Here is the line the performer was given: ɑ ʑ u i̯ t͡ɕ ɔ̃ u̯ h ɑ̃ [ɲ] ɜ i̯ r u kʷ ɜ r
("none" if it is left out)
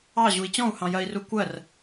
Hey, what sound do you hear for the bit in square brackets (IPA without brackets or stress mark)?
j